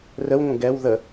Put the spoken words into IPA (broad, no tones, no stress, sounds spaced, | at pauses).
r ə w ŋʷ ə̃ ɡ ɛ w ð ə